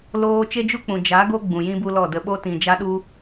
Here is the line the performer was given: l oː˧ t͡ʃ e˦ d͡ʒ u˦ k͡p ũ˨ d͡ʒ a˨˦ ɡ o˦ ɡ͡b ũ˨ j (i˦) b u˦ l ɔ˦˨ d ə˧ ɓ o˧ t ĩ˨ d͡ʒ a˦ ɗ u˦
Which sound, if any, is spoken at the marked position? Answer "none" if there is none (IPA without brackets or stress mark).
ĩ˦